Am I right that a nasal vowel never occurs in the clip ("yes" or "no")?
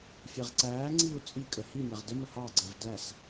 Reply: yes